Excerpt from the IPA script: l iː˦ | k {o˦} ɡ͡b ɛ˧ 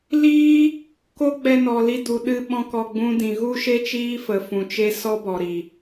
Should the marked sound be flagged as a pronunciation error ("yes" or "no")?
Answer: no